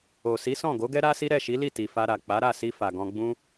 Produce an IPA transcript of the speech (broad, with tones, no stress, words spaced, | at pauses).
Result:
o˨ si˨˦sɔ̃˦˨ɡo˨˦ɡɛ˦ ɾa˦si˦ ɾɛ˦˨ʃi˨˦li˦˨ ti˨fa˧ɾa˨ k͡pa˨˦ɾa˦˨si˧ fa˨ɡɔ̃˧ɡ͡bũ˦